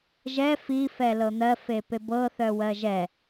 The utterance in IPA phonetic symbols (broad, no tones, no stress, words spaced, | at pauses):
ʒɛ fi fɛlɤn̪ɜ fepebɤ θœwɜʒɛ